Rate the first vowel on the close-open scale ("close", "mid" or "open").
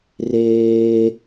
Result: mid